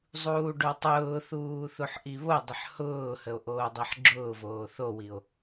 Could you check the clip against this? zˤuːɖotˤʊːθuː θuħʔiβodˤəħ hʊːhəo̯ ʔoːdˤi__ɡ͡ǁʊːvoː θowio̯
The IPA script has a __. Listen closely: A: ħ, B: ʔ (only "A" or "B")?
A